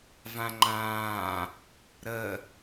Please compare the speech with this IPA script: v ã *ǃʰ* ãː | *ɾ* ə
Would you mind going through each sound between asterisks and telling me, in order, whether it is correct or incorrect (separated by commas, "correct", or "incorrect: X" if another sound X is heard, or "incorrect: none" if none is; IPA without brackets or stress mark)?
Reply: incorrect: ŋ͡ǃ, correct